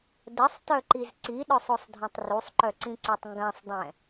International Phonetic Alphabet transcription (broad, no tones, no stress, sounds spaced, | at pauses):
d ə sˤ t œ ǃ i z ǀ i ɗ œ sˤ o sˤ dʱ ĩ tˤ r u sˤ ǃ œ ǀ ĩ ǀ e tˤ ŋ ɡ ã sˤ dˤ ɛ̃